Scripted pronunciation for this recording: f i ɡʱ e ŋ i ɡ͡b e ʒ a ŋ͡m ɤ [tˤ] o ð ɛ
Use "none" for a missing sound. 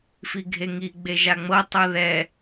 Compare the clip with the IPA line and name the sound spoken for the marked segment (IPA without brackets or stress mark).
tˤ